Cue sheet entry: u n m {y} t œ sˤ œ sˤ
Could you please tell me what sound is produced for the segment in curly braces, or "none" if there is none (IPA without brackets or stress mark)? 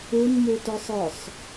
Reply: u